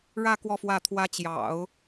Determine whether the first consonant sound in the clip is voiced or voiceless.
voiced